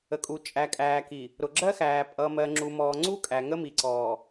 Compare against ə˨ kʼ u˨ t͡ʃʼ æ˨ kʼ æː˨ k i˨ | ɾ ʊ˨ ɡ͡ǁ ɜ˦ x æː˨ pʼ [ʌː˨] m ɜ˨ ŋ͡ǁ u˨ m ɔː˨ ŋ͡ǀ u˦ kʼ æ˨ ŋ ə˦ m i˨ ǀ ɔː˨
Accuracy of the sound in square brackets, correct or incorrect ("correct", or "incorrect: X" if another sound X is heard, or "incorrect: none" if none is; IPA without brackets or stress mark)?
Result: correct